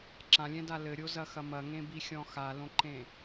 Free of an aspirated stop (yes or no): yes